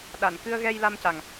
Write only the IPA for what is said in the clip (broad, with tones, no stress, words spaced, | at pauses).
ɗa˨˩˨nkɨ˧ə̯ ɣɛ˧jla˧mca˨˩ŋ